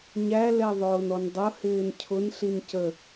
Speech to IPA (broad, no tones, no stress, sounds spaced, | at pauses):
ɲ æ l ɛ ðˤ ʊː n ɔ n dˤ ʊ h ɪː n cʰ ʊ n ɬ i n c ə